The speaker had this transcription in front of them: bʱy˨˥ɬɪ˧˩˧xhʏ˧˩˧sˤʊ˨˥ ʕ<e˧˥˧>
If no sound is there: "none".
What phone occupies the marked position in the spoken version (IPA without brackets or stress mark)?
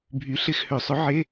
e˧˥˧